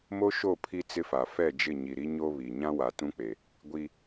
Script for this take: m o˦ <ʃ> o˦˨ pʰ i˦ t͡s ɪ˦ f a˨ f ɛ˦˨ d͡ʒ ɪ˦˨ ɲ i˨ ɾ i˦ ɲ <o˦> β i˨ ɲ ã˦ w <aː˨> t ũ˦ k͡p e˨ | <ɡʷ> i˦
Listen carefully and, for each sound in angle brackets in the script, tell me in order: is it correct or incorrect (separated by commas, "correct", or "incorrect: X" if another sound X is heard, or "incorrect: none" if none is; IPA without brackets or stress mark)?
correct, correct, incorrect: a˨, correct